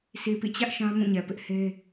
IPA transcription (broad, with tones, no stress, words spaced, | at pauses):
si˨pḭ˦˨t͡ɕä˦ʔ ʃã˦mũ˦˨ɲɛ˨ pɪ˦ʔhe˦